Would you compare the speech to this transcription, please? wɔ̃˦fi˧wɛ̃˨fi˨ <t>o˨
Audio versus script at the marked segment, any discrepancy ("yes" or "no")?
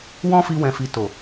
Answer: no